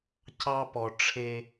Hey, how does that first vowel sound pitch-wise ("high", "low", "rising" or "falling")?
high